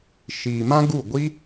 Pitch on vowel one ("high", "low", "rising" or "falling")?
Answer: low